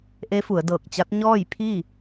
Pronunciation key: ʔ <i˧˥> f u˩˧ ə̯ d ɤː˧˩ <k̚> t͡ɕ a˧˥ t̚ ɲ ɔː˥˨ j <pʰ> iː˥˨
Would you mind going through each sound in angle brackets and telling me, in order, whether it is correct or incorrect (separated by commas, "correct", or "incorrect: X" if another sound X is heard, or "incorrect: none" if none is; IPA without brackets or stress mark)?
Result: incorrect: e˧˥, correct, correct